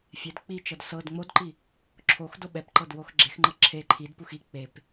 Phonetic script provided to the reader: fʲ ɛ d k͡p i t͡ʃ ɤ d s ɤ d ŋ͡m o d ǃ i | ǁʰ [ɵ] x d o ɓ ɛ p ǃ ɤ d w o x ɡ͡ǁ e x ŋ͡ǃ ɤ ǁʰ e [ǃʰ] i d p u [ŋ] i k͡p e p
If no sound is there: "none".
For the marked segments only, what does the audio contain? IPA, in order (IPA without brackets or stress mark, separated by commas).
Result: o, ǃʰ, x